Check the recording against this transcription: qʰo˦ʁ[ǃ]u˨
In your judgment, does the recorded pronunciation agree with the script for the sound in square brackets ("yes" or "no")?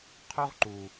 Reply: yes